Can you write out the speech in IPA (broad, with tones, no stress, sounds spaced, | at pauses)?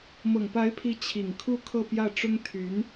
m ɤ˨˩ ŋ p a˧˥ ɪ̯ pʰ i˧˥ t͡ɕʰ i˨˩ ŋ kʰ u˥˧ kʰ ɤ˥˧ p j ä˥˩ ʈ͡ʂ ʊ˥ ŋ t̪ʰ y˧˥ n